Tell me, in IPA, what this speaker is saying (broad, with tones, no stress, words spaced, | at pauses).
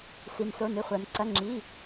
si˩nso˩˧˩nɨ˩˧˩ χʷɐ˩nǀɐ˩˧˩ŋ͡ǁi˩˧˩